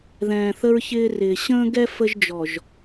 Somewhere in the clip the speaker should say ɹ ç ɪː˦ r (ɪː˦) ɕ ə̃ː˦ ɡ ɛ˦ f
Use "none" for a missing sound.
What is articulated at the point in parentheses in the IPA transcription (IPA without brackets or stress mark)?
ɪː˨